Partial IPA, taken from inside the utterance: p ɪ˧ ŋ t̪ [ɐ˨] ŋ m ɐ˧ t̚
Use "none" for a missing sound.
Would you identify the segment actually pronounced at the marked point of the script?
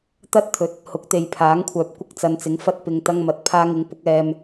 ɐ˥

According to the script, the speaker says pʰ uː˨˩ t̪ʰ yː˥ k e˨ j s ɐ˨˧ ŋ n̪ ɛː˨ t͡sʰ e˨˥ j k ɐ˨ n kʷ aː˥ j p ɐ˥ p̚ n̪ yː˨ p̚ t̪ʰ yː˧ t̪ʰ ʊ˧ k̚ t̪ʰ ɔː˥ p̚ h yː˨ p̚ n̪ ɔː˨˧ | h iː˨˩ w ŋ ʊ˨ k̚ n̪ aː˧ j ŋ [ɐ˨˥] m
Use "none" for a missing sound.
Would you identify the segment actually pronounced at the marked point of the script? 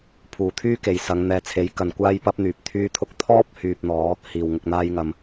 ɐ˨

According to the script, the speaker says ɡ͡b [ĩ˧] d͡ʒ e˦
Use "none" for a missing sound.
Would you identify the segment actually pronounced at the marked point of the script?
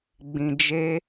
ĩ˧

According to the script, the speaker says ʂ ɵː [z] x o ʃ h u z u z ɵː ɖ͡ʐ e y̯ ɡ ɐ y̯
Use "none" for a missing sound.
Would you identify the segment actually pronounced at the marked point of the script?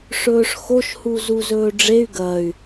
ʂ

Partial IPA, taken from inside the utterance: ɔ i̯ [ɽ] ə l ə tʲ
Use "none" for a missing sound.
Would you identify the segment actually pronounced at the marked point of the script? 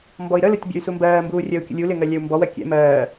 ɾ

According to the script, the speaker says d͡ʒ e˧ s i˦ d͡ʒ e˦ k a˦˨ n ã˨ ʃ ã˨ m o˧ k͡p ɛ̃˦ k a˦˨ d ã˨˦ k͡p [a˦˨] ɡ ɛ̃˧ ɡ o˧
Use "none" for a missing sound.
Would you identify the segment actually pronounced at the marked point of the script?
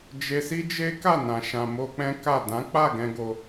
a˦˨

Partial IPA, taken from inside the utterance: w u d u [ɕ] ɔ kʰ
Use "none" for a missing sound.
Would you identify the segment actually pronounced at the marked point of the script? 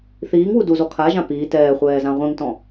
z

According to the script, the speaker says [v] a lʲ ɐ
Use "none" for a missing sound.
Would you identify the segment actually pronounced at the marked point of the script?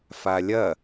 f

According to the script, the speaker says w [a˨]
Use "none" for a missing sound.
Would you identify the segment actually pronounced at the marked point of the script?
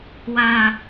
a˨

